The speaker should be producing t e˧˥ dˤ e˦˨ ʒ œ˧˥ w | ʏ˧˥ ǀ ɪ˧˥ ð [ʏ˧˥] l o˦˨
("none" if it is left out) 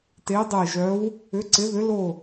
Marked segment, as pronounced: ʏ˧˥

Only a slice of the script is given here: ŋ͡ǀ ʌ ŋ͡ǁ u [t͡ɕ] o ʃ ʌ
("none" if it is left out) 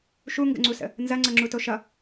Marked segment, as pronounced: t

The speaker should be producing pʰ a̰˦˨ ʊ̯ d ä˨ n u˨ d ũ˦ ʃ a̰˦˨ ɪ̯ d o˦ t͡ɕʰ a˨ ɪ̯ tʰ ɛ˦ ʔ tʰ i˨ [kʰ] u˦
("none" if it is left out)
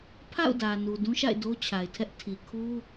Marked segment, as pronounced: kʰ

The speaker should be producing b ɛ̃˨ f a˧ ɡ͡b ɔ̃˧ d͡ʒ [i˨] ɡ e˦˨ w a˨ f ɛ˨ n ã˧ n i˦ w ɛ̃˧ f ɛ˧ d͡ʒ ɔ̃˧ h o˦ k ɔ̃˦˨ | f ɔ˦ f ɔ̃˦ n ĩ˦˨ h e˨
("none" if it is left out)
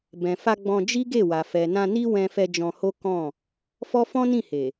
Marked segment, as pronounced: i˦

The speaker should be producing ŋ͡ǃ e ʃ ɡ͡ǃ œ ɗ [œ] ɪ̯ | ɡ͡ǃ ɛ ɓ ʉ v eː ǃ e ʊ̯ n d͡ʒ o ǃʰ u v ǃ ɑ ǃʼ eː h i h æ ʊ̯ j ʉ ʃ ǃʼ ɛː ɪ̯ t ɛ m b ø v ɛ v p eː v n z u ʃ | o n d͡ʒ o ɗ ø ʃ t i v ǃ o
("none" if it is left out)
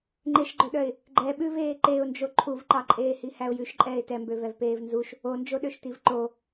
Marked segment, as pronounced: œ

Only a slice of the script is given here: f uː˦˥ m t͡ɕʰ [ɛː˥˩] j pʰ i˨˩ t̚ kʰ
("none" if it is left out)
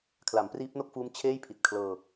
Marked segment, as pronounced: eː˥˩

